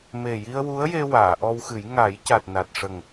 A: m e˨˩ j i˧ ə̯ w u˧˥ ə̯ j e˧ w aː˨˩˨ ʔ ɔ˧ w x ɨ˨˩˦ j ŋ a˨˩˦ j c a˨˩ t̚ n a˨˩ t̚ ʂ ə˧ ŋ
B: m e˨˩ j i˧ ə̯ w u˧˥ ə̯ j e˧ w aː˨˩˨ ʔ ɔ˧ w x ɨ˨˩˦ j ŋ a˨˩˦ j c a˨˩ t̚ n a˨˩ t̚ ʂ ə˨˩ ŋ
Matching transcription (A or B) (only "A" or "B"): B